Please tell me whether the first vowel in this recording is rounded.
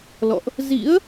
yes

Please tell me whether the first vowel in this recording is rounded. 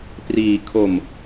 no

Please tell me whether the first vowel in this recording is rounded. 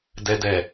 no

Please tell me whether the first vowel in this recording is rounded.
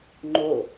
yes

